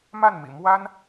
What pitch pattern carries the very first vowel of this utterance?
falling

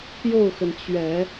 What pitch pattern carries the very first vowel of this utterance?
falling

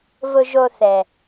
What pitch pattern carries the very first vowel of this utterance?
low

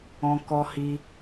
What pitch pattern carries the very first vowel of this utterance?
high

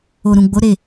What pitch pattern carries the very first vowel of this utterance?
low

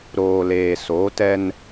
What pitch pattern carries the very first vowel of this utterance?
low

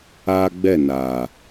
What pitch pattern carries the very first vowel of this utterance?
high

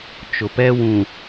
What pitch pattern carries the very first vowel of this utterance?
low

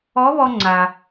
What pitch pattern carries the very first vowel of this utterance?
rising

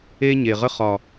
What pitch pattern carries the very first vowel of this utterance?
high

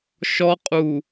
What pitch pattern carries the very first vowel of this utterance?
high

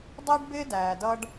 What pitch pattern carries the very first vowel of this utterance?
high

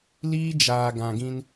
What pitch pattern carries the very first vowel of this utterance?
high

